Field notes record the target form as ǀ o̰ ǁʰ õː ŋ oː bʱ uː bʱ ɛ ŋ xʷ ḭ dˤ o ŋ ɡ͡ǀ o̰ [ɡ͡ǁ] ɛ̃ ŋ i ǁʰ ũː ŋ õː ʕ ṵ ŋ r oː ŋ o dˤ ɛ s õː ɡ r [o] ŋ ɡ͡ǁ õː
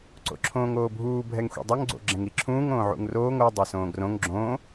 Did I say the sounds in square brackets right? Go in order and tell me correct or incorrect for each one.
correct, incorrect

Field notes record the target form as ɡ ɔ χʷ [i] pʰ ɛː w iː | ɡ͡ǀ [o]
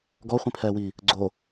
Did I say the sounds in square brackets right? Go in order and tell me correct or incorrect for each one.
incorrect, correct

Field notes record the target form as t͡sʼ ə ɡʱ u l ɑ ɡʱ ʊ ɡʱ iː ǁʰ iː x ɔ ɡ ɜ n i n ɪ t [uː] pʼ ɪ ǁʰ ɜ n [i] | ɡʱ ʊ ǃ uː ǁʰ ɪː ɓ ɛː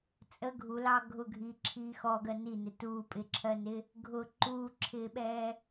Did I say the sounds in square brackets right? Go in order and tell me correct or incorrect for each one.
correct, incorrect

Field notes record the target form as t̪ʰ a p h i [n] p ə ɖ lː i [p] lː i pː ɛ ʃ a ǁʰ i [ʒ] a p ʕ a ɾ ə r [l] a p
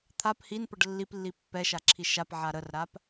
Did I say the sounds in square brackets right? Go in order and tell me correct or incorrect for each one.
correct, correct, incorrect, incorrect

